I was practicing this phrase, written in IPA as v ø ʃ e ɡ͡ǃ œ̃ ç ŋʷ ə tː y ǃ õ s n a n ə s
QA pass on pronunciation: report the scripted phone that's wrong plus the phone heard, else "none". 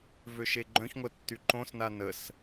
none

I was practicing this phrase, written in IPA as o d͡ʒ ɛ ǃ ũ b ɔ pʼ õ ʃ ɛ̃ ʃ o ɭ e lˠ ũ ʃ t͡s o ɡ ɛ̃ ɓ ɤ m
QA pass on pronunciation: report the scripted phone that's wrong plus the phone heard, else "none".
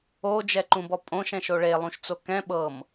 ɡ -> k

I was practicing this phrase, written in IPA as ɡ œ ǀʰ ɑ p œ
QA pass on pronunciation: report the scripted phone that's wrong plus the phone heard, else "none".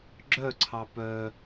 ɡ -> ɡ͡ǁ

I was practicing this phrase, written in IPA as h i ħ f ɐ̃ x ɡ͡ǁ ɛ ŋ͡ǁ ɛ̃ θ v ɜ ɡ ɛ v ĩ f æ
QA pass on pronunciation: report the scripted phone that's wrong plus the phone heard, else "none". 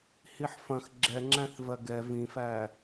ɛ̃ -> æ̃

